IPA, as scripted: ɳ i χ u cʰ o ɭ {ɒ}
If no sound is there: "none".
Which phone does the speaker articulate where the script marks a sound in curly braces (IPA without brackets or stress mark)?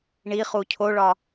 ɒ